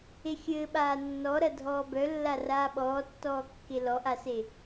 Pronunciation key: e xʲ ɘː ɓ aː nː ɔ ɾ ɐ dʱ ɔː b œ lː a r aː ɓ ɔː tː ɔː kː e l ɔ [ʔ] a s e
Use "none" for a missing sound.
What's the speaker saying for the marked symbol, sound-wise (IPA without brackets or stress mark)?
ʔ